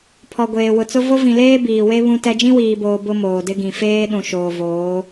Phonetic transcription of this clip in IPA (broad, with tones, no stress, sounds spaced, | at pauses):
pʰ ɔ˨ ɡʷ eː˨ w ʊ˨ t͡s ʊ˦ v o˦ v ĩ˨ l eː˦ b iː˨ w e˦ β ũ˦ t ɛ˦ d͡ʒ ĩ˦ w iː˨ b oː˨ b ʊ˦ m oː˨ d ɪ˦ ɡ ĩ˨ f eː˦ ɗ ũ˨ ʃ oː˨ v oː˨˦